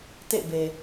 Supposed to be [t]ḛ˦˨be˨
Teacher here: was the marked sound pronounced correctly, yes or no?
yes